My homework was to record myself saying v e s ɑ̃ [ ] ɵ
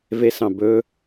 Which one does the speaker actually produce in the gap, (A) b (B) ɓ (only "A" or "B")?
A